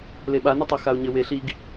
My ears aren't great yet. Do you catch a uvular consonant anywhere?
no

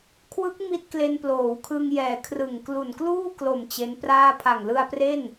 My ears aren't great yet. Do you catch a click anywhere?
no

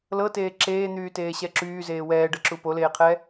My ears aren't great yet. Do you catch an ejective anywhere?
no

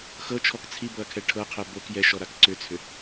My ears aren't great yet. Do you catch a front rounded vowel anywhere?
yes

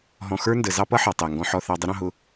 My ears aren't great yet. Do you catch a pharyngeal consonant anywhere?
yes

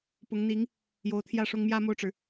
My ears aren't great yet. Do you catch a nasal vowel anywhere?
no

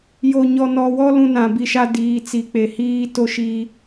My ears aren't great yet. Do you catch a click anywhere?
no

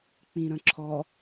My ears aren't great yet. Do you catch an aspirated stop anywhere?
yes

